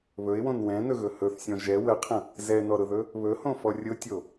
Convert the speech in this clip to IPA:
β ɵ ɪ̯ w õ n w ɛ̃ n ɵ ɣ ɵ h ɵ θ sʲ ɔ̃ ʒ ɛ w ə qʰ ə̃ | z ɛ n ɔ ɾ ʊ ð ɵ | β ɵ h õ f ɔ rʲ ʊ tʲ o

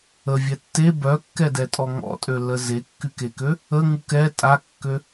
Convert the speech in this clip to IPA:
ə vʲ ɛ tː e b œ kː ɛ d ɛ tʼ ɔ ŋ ɔ̰ tʼ ø l ə z e kː y k e k ø | ə ŋ u k ɛ tʼ a kː ø

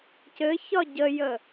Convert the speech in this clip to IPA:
c ɘ ç ɒ ɟ ə j ə

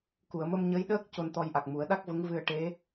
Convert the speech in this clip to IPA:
k u˨˩˨ ə̯ m ə˧ m ɲ ə˧˥ j ɗ əː˦˥ k̚ c o˧ n t̪ ɔ˧ j ʔ a˨˩ k̚ m u˨˩˦ ə̯ ɗ a˦˥ k̚ v ə˧˥ ŋ v ɨ˧ ə̯ ʈ e˧˥

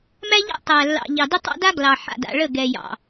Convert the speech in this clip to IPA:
m æ˦ ʎ a̰˦ tˤ æ˨ lː ɑ̰˨ ʎ ɑ˨ d ə˦ tˤ ɑ̰˦ d a˦ ɡ l ɑ˨ ħ a̰˨ d a̰˨ ɭ ə˦˨ ɡ ɛ˨ j ɑ̰˨

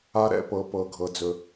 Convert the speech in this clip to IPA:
a˧ ɾ ɛ̰˧ p ɤ˩ p ɤ˩ ɡʱ ɤ˩ d͡z ɵ˩

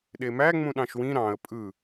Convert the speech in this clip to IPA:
ɗ e m æ ŋ͡m ũ ɗ ɑ̃ ʃ w ĩ ɾ ɑ̃ ə̯ pʼ ɯ

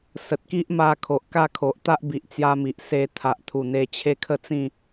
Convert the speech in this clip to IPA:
s ə˨ t̚ k i˦ ʔ m a˧ kʰ o˨ ʔ k a˥˧ kʰ o˨ ʔ t̪ a˦ ʔ b i˨ ʔ t͡s j a˧ m i˨ ʔ s e˧ t̪ʰ a˨ ʔ t̪ʰ u˨˩ n̪ e˧ t͡ɕʰ e˦ kʰ ə˥˧ t͡s ĩ˥˧

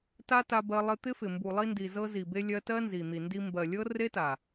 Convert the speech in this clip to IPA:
t a˦ t a˧ b ɜ˧ lˠ ɪ˧ t̪ ɪ˦ f ɪ˨ m b u˨ lˠ i˧ n d i˨ z ɤ˧ z i˨ b e˧ lʲ ɜ˧ t ɜ˦ n z i˨ n̪ i˨ n d i˧ m b ɜ˨ lʲ ɤ˦ r e˦ t a˨

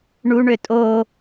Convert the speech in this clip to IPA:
ɳ u ɳ ø tʼ o

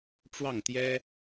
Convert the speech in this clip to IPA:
ʈ͡ʂ w ɑ˥˩ ŋ t̪ j ɛ˥

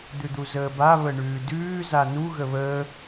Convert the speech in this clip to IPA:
d̪ ʉ d̪ u z əː b a β ə ɳ ʉː d ʉː z a n u ɣ ə β əː

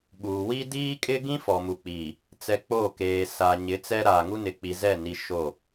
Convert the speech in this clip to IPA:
ɓ uː˨ w i˦ d iː˦ kʼ ɪ˦ ɡ ĩ˦ f ɔ˨ m u˨ k͡p iː˨ | t͡s ɛ˨ k͡p o˦˨ k eː˨ s aː˨ ɲ ɪ˨˦ t͡s ɛ˦ ɾ aː˨ ŋ u˦ n ɪ˨ k͡p i˨ z ɛ˦˨ n i˨ ʃ o˦˨

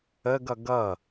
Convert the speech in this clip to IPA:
ə ɡ ʌ ɡ ʌ

